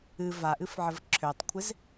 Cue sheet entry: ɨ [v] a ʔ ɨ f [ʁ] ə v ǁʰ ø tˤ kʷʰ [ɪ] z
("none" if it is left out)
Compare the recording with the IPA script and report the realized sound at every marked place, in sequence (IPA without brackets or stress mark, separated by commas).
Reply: v, ʕ, ɪ